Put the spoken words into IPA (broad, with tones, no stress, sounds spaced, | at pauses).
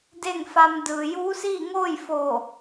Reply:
d e˥˨ ŋ f a˧ m d ɯː˩ j uː˧˥ s iː˥˨ ŋ oː˥˨ j f oː˧˩